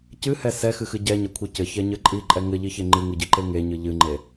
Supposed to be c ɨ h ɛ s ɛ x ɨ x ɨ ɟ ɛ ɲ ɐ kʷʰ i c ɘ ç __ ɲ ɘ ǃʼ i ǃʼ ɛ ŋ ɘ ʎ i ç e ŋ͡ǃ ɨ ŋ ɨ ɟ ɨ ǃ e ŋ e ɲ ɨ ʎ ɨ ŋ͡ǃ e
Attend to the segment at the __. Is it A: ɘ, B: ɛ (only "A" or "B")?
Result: B